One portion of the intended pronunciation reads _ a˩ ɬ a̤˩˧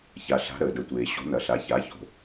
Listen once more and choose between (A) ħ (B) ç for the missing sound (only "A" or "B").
B